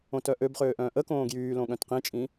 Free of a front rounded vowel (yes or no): no